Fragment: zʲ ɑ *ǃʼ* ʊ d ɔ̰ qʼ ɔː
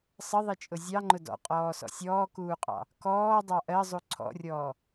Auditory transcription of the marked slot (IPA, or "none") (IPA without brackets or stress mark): ŋ͡ǃ